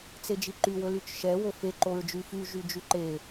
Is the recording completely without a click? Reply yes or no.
no